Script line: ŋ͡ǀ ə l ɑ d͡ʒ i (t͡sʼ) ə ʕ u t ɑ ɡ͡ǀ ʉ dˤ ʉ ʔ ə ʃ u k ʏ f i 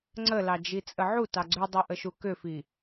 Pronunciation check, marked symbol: correct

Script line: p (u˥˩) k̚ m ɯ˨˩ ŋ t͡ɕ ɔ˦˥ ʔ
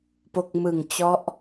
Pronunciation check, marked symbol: incorrect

